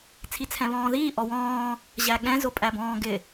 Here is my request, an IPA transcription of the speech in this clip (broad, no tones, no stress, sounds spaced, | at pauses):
t͡sʰ i t͡sʰ ɛ̃ β ɔ̃ː ð iː ʔ ɔ w ɔ̃ː | ʑ æ ɠ ɛ̃ z ʊ pʼ æ b ɔ̃ː ɡ ɪ